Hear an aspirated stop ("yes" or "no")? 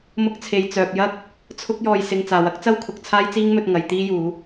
yes